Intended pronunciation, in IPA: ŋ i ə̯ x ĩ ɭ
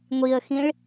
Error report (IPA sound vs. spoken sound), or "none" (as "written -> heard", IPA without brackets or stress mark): ŋ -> ŋʷ